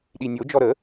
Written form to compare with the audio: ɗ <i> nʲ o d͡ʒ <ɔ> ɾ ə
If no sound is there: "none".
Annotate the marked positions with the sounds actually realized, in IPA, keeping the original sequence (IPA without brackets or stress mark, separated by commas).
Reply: i, ɔ